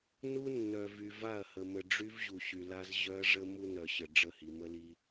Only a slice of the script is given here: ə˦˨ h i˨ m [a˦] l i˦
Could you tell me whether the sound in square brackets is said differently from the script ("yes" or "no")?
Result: yes